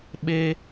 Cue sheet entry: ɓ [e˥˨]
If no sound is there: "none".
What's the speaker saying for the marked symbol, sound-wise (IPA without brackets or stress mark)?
e˦